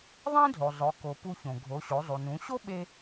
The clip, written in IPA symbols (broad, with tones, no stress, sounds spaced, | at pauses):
ðˤ ẽ˥ dʱ o˩ zˤ ʊ˩˧ k o˩ p u˧ ç õ˩ ɡʱ o˩˧ ɕ o˩˧ zˤ u˩ n ũ˩˧ ɕ o˥ ɓ e˧